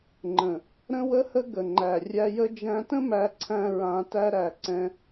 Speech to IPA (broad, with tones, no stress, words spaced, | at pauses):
ŋ͡ǃə̃˨ | ɾə̃˦wə˦hə˦ ɡə˨ŋ͡ǃæ˨ rʲæ˧jə˦ d͡ʒæ̃˧tə̃˦ mæ˧ǀʰæ̃˧ ɹã˧ tæ˦ɾæ˧ ǀɛ̃˦